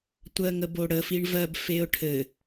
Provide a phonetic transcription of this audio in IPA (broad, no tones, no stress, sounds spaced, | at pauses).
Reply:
tʷ ɜ ŋ ə b o ɽ ə f i ɳ v ɜ b f e ʊ̯ ʈʰ ɘ